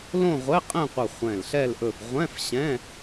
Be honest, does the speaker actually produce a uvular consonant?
yes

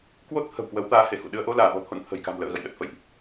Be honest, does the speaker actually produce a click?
no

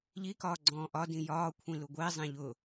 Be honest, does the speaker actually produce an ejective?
no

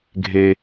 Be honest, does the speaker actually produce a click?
no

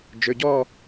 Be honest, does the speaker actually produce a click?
no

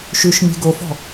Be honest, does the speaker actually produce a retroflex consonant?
no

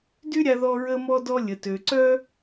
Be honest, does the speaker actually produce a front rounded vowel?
yes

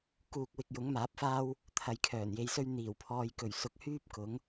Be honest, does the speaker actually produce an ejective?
no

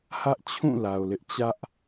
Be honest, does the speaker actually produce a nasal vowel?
yes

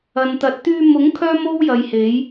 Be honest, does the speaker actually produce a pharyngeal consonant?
no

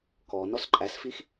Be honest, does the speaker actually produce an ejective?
yes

